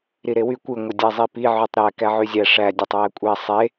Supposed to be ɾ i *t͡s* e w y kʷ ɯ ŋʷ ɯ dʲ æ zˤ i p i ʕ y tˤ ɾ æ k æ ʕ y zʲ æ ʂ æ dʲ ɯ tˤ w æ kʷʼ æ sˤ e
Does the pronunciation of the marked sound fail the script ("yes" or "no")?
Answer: yes